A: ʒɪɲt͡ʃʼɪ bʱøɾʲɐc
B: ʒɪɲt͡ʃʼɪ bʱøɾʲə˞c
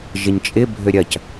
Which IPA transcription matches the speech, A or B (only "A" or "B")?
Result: A